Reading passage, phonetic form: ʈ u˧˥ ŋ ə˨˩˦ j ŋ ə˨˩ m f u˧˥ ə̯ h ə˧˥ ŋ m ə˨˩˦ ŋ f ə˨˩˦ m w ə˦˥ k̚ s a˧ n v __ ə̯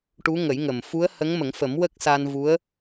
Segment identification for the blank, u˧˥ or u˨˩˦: u˧˥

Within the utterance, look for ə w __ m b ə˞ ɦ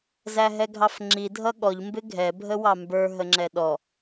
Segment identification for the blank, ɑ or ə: ɑ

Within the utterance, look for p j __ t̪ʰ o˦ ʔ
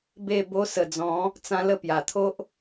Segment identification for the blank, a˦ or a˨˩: a˨˩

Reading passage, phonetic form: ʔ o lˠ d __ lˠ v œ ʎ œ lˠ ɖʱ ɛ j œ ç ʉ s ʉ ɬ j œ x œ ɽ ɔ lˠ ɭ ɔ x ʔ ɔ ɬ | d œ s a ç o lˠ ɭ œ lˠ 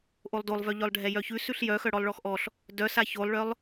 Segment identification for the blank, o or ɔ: o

